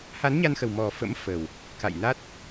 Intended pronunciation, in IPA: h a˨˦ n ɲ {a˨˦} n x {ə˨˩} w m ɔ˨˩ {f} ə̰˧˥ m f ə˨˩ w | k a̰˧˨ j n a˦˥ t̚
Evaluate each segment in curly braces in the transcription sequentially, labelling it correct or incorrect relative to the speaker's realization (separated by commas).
incorrect, correct, correct